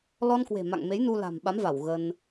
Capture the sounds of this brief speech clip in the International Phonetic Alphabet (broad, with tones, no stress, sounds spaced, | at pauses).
l ɔ˧ n k w e̤˨˩ m a̰˧˨ ŋ m e˨˦ j n u˧ l a̤˨˩ m ɓ a˨˦ m v a˧˩ w ɣ ə˧ n